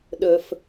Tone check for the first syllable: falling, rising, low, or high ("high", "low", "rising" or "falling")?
low